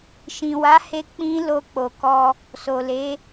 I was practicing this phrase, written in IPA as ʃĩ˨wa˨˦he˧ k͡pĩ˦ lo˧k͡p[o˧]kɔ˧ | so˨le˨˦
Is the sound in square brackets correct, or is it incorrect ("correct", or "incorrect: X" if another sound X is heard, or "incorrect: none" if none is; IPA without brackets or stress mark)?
incorrect: o˨